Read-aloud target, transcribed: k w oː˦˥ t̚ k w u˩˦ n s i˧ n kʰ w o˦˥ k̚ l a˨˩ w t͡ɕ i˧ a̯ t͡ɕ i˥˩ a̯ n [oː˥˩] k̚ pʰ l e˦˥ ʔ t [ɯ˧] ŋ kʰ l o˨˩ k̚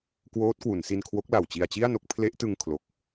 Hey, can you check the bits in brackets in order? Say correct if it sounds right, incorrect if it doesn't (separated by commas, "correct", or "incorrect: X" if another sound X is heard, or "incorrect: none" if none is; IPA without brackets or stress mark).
incorrect: o˥˩, correct